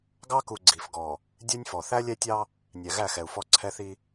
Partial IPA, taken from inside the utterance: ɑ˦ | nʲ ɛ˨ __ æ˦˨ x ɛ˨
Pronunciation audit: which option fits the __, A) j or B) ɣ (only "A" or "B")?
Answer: B